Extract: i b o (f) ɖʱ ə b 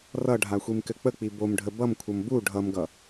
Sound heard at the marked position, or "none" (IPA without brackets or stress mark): m